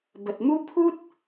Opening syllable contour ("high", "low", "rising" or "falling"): low